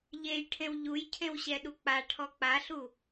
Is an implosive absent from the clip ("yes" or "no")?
no